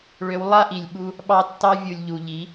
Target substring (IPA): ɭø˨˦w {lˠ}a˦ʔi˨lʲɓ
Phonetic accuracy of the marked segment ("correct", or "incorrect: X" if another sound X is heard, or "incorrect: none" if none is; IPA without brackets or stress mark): correct